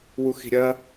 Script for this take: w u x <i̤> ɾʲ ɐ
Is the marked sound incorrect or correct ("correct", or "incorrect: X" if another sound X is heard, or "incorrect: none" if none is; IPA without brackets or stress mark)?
correct